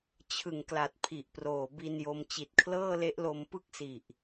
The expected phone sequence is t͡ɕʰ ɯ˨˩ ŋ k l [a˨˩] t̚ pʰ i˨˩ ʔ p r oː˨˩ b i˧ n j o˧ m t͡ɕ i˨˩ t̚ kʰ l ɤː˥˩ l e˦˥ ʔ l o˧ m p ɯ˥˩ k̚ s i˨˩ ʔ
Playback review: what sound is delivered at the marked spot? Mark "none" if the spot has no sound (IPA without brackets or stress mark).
a˨˩